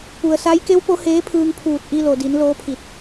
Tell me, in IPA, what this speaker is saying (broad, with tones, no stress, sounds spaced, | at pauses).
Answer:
p u˩ ə̯ s a˧˥ j k e˧˥ w p o˧˥ h eː˧˥ pʰ ɯː˧ ŋ pʰ uː˧˩ t̚ ʔ i˧ l o˩ d i˩˧ n l oː˧˥ pʰ i˧˩ t̚